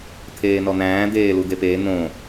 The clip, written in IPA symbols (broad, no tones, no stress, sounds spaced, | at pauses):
t̪ʰ eː n ɔ n̪ æ̃ː d̪ eː l u d̪ e p eː n̪ õ